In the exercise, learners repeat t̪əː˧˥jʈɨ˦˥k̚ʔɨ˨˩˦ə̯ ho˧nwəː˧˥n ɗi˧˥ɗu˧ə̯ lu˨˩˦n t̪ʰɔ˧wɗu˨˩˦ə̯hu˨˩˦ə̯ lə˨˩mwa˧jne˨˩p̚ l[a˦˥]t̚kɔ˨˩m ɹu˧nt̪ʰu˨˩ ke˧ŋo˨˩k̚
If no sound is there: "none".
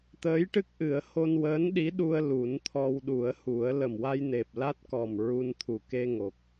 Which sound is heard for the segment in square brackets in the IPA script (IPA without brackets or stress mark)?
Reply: a˦˥